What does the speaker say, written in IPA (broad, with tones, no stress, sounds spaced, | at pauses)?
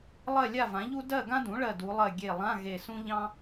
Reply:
lˠ ɜ˥˨ lʲ a˥˨ v ã˩˥ ʎ u˥ d ɜ˥˨ ɡ ã˥ d ũ˩˥ ɭ ɜ˧˩ d u˩˧ lˠ ɜ˧˩ ɡʲ e˧˩ lˠ ã˧˥˧ ɣ e˧˩ s ũ˥ ʎ ɑ̃˥